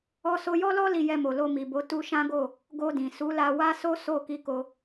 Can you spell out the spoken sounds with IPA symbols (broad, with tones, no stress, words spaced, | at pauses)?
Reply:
ɔ˧so˧jɔ˦lɔ˦ li˧jɛ˧mo˨ lo˧mi˨bo˨˦ tu˧ʃã˦ɡo˦˨ | ɡo˧dĩ˨su˨˦la˧ wa˦so˦ so˦˨ ki˨˦ko˧